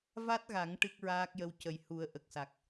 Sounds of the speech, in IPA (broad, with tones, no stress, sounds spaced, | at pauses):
v a˦˥ t̚ ɣ a˨˩˦ ŋ ʈ ɨ˦˥ k̚ ɹ aː˦˥ k̚ j ə˧˥ w c ə˨˩ j h u˨˩˦ ə̯ ʔ ə˨˩ k̚ s a˨˩ k̚